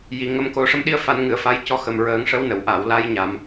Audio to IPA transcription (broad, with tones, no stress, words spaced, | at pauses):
ji˨˩ŋə˧mko˧ ʂə˧mɗi˧ə̯fa˨˩˦nŋɨ˨˩˨ə̯ fa˧jcɔ˧˥xə˨˩mɹəː˨˩˦ŋ ʂə˧˥wnə˨˩˨w ʔa˨˩˨wla˧jɲa˨˩˨m